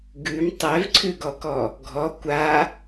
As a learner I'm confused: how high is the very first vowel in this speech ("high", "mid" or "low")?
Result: high